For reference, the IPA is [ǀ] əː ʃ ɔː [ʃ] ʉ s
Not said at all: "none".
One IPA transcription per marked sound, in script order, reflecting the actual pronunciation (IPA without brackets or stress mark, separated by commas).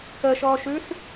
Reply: k, ʃ